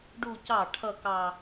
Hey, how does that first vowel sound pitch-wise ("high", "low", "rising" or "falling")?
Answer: falling